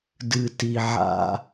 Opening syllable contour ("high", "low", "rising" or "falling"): low